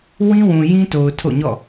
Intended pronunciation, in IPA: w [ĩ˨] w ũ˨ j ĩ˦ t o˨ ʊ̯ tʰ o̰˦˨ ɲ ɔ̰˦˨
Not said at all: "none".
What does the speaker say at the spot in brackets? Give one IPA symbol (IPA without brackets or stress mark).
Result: ĩ˦